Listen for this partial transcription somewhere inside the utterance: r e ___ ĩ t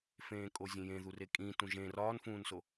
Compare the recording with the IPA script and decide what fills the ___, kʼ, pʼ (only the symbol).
kʼ